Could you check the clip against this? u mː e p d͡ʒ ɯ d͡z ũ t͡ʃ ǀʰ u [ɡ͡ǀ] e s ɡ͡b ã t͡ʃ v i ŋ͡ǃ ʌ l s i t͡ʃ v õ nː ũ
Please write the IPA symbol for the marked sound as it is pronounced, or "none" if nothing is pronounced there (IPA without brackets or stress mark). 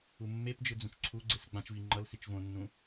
ɡ͡ǀ